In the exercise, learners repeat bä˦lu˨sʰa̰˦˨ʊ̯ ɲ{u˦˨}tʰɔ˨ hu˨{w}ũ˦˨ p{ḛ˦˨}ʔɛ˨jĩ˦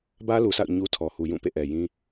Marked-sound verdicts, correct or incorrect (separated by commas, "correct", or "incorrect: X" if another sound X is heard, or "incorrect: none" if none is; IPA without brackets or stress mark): incorrect: u˦, incorrect: j, correct